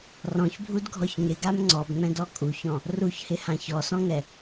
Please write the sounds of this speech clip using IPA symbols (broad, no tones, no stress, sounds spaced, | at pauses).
r ɔ̃ ç bʱ u d ɡʱ ɔ ç ŋ ɪ ɡ a m ŋ͡ǀ ɔ b ŋ͡m ɛ̃ d ɔ kʼ u ç ɔ̃ | r u ç h ɪ h ã ç ɔ s ɔ̃ ŋ ɛ